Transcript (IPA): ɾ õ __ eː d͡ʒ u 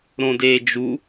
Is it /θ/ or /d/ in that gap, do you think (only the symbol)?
d